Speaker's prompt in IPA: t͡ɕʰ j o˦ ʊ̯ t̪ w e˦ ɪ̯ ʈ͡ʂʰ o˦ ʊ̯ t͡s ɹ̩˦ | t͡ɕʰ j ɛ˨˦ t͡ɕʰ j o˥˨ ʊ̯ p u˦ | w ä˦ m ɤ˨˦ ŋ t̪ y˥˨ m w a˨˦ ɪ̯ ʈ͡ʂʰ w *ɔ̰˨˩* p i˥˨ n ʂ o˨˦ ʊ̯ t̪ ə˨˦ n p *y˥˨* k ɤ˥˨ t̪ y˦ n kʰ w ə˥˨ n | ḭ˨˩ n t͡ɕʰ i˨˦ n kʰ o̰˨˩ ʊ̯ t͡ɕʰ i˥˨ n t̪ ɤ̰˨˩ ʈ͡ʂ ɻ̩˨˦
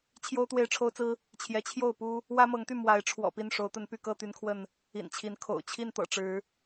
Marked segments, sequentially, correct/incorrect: correct, correct

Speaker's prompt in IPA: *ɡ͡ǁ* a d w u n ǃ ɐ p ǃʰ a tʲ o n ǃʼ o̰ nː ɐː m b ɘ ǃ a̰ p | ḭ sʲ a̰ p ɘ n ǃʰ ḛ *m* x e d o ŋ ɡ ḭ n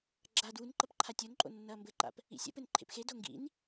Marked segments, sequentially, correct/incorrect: correct, incorrect: p

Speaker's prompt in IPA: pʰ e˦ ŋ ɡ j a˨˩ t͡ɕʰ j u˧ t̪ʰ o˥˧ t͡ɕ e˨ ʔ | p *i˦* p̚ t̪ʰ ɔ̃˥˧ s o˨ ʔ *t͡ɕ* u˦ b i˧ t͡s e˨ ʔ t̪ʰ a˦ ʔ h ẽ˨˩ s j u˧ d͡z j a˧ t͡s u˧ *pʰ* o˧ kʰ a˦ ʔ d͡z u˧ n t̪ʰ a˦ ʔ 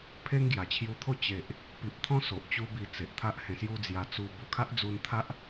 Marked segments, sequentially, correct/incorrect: incorrect: i˨, correct, incorrect: b

